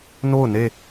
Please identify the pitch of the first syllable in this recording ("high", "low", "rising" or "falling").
falling